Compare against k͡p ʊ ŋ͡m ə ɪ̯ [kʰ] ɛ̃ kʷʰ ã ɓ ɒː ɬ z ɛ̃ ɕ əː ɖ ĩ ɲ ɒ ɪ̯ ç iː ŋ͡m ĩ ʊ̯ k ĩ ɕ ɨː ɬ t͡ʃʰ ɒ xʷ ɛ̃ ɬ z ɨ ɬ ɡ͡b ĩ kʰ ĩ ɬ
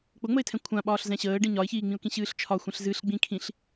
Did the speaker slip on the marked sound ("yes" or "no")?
yes